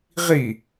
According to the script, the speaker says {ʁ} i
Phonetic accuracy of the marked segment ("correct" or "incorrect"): correct